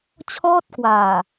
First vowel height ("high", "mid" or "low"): mid